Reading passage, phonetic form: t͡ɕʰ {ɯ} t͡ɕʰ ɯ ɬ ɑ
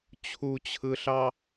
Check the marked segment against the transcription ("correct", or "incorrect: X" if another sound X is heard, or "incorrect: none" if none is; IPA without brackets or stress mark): incorrect: u